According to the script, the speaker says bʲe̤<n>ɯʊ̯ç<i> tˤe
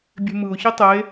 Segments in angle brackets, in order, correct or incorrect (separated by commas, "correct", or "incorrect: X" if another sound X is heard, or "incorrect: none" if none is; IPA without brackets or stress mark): incorrect: m, correct